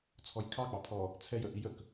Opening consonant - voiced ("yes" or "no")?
no